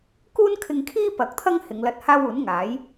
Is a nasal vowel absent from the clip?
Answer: yes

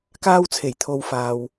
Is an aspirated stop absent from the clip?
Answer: no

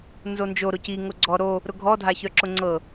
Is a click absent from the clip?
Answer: no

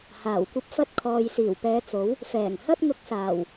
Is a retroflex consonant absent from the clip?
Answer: yes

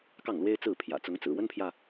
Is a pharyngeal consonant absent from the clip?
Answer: yes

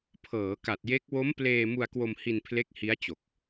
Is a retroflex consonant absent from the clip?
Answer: yes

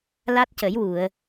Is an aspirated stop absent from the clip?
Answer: yes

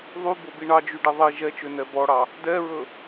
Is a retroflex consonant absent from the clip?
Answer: no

